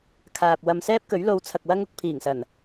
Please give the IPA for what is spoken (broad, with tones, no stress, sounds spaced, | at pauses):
kʰ aː˨ p̚ w ɐ˨ m s ɛː˥ p̚ k ɵ˨˥ ɥ l o˨˧ w t͡sʰ ɐ˨ k̚ w ɐ˧ ŋ ʊ˨ k̚ pʰ iː˨˩ ŋ s ɐ˨˩ n